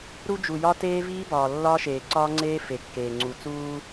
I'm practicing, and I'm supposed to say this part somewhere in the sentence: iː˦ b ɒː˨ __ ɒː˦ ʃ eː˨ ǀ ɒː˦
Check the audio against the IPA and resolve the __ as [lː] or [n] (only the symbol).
lː